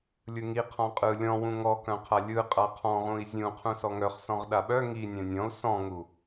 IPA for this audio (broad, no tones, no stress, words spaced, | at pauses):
lʲɯŋi qʰɔ̃qʼɯ lʲɔ̃wũ ŋɔkœ̃qʰa lʲɯ qʼaqʰɔ̃ʁũi̯ zʲũ qʰũsɔŋœχsɔ̃ʁ ɗaɓœ ŋi nʲœ̃nʲɔ̃u̯ sɔ̃ŋu